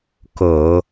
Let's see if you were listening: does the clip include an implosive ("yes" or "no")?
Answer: no